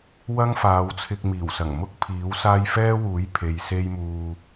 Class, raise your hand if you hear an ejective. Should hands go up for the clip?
no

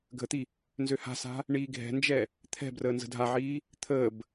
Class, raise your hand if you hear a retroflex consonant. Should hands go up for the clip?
yes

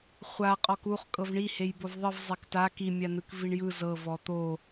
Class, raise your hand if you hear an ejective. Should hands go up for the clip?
yes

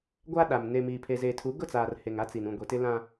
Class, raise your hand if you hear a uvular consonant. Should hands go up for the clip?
no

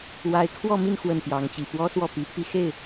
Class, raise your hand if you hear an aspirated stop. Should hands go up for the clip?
yes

